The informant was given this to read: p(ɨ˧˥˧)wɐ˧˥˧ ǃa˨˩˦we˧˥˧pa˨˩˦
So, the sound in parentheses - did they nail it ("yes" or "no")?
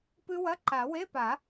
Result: no